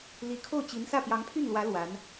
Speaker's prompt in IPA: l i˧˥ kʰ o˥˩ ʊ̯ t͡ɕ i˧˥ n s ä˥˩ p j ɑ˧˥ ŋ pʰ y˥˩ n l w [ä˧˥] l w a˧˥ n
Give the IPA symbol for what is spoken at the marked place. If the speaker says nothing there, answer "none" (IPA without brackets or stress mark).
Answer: ä˧˥